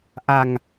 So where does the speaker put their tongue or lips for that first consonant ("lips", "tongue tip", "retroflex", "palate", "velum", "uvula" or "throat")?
throat